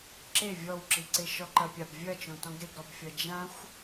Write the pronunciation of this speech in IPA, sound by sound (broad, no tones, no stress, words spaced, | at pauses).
ǁe vʲɔwǁiǀe ʃɔǃɐpʲab vʲɐt͡ʃõtɔ̃ɡ ɾeɡɾɔbfʲɐ d͡ʒãxʷ